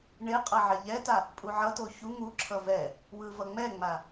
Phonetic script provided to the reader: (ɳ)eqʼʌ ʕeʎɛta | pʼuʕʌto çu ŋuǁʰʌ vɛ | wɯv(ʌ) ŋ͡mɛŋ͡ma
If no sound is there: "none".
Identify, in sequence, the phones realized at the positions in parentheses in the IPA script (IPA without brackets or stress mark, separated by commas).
ɳ, ʌ